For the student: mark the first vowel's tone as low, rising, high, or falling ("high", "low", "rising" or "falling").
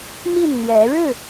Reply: falling